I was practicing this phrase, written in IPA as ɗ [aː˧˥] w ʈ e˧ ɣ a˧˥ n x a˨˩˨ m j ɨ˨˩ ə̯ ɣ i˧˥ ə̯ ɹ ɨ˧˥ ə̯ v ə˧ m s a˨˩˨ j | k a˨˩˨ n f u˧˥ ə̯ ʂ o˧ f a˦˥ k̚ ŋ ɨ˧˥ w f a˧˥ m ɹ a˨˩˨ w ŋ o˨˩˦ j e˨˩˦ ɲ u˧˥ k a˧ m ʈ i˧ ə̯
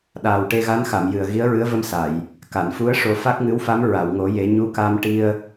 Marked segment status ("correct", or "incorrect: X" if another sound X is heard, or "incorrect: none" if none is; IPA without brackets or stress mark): incorrect: aː˨˩